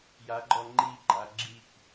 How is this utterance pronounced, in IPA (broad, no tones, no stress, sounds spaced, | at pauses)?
j a ɡ͡ǃ ɔ ŋ͡ǃ i ɡ͡ǃ a ɡ͡ǁ i k